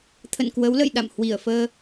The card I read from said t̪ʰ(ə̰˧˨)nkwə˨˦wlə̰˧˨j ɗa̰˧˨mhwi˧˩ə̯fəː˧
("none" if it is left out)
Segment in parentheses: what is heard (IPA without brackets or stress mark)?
ə̰˧˨